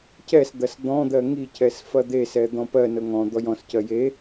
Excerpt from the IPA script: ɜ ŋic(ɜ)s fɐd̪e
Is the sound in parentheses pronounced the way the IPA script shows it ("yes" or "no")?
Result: no